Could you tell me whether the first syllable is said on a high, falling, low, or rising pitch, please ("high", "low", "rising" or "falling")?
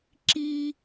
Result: high